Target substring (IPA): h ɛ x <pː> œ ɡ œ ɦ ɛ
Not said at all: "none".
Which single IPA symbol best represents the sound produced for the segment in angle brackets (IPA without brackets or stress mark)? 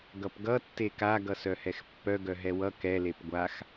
pː